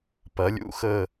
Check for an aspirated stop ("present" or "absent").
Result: absent